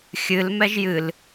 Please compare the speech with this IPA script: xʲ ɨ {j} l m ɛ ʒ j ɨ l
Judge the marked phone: incorrect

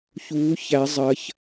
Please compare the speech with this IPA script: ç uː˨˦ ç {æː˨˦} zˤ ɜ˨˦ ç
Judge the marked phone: incorrect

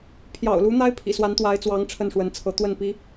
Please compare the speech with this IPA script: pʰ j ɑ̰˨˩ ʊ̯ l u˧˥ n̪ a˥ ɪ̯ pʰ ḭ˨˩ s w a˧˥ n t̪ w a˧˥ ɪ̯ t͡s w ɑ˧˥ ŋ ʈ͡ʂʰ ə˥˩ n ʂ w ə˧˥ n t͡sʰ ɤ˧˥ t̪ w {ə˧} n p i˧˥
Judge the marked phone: incorrect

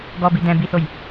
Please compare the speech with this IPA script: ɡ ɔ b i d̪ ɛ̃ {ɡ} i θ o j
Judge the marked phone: incorrect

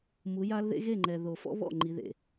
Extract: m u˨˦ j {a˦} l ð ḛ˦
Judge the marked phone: correct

